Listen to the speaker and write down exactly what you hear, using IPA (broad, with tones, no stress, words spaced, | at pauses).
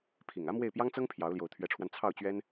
pʰi˨˩ŋä˥mwe˥˩ɪ̯ pjɑ˥ŋt͡sɤ˥ŋ pʰjɑ˧˥ʊ̯ljo˧˥ʊ̯ t̪ʰɥɛ˧˥ʈ͡ʂʰwa˧n t͡sʰɑ˥˩ʊ̯t͡ɕɥɛ˥n